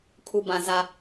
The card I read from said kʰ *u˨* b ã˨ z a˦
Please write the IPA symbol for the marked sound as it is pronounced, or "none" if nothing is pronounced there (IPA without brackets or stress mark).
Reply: u˨